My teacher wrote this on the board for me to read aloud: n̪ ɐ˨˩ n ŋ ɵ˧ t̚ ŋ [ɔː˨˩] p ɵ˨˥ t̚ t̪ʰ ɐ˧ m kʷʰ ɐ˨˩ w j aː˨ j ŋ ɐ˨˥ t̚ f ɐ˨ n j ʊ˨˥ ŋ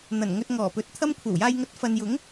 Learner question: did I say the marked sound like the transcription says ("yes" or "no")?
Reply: yes